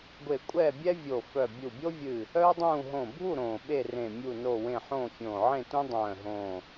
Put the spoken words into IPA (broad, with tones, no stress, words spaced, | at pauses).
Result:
ɡʷe˧˩ kʷʼɛː˥˨bʲɛ˥vʲo˧˩ fœ˧˩ bʲu˧˩bʲo˥vʲɨ˧˩ | œː˥dˤũː˥˨ ɦõ˧˩bʱu˥˨ ɾõː˧˩ɓe˥˨rẽ˧˩ mʲu˧˩no˧˩wẽ˧˩ ħõː˥˨fʲõː˧˩ʕẽ˥˨tũ˥ dˤœ̃ː˧˩ɦõː˧˩